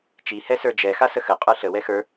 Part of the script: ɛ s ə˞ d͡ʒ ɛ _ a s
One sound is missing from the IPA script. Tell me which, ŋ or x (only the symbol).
x